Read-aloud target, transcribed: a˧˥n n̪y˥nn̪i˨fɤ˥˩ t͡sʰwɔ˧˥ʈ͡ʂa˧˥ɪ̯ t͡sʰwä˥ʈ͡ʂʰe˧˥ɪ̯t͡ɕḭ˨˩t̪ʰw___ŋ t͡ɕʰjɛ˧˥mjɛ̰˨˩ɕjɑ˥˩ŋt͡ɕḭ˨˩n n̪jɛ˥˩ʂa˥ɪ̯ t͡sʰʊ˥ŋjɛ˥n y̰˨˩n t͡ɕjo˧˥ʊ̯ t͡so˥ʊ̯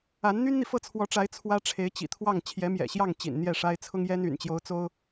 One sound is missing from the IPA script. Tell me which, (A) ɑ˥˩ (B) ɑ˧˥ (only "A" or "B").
A